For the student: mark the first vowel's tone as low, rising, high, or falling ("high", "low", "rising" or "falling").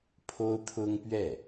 high